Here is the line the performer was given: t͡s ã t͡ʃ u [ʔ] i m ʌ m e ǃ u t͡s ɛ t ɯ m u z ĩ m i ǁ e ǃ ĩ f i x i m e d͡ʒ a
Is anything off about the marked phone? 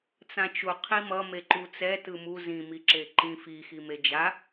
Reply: yes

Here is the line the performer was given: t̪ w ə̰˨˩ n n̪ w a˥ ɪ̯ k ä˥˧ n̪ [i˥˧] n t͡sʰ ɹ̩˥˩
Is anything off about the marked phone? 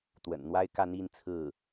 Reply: no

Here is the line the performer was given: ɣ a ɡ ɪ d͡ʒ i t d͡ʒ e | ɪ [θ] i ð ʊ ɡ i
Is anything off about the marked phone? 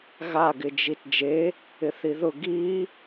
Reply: no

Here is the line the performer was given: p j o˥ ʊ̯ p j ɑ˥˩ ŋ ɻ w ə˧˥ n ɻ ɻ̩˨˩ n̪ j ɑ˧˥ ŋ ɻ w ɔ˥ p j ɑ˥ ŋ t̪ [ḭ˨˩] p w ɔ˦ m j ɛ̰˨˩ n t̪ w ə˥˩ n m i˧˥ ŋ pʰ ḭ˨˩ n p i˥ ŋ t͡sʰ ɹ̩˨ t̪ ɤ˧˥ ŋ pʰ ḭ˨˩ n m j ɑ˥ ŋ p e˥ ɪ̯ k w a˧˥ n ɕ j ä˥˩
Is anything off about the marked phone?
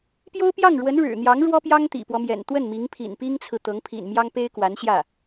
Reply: no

